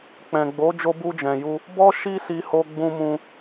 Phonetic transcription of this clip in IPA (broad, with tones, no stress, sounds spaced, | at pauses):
k͡p ɛ̃˨ ɡ͡b o˨˦ d͡ʒ o˧ b u˧ d͡ʒ ɛ̃˨ j u˧ | b ɔ˦ ʃ i˦ s i˧ h o˧ ɡ͡b ũ˧ m ũ˧